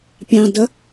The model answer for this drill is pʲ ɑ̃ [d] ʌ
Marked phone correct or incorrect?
correct